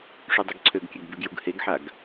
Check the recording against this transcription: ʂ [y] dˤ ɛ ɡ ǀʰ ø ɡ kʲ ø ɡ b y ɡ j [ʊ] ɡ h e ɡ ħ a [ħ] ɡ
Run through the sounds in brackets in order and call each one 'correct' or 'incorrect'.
correct, incorrect, incorrect

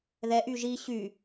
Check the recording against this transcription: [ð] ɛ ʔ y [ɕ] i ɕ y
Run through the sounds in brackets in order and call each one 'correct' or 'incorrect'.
correct, incorrect

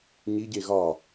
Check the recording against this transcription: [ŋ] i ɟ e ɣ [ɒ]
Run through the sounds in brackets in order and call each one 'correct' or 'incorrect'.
incorrect, correct

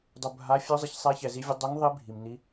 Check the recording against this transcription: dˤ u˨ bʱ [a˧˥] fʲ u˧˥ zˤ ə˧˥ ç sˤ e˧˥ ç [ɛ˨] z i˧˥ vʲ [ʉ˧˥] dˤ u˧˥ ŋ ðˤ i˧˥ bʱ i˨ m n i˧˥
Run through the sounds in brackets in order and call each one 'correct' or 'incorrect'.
correct, correct, incorrect

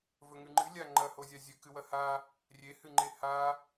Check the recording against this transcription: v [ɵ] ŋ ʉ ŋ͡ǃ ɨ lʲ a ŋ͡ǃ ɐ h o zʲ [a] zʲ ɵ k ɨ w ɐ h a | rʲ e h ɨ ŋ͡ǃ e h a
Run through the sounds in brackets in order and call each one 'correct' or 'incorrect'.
correct, correct

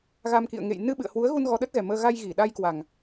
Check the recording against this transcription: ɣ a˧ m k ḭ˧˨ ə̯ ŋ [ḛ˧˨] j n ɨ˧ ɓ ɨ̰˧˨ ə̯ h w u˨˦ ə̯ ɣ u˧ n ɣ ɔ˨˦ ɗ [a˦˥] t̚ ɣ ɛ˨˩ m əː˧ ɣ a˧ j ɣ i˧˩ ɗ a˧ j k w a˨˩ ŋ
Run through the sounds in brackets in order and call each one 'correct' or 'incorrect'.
correct, incorrect

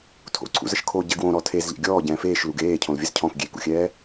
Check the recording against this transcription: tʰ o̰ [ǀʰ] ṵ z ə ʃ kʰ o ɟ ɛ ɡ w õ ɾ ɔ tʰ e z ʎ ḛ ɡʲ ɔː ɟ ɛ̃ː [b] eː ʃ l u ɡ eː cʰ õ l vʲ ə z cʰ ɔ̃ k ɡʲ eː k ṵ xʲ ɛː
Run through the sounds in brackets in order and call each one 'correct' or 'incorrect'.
correct, incorrect

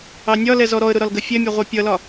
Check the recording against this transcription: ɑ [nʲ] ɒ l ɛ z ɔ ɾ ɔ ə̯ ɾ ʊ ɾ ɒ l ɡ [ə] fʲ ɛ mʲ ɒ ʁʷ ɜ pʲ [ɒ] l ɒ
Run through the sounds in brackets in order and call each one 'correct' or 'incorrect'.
correct, correct, incorrect

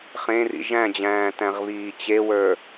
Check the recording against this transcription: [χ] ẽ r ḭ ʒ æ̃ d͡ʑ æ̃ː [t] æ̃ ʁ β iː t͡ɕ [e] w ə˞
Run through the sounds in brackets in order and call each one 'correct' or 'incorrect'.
correct, correct, correct

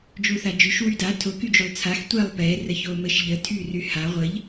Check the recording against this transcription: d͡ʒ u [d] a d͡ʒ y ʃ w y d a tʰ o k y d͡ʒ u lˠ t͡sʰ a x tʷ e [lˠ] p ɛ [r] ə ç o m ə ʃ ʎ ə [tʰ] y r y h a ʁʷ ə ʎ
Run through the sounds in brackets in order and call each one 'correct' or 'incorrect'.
incorrect, correct, correct, correct

